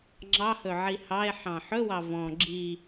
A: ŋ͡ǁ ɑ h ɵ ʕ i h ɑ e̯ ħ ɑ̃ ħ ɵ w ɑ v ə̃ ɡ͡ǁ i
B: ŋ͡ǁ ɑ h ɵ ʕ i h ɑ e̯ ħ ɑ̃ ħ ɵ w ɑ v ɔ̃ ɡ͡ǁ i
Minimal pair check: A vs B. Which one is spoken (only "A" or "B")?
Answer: B